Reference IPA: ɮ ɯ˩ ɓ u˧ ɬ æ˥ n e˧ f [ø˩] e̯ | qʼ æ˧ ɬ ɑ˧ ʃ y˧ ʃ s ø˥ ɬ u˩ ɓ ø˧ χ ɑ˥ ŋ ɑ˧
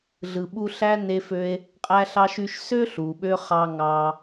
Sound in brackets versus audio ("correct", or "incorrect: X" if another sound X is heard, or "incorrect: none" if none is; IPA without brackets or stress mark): incorrect: ø˧